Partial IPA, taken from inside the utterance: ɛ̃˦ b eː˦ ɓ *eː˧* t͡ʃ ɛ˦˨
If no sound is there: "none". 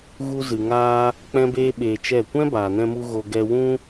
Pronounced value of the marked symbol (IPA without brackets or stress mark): eː˧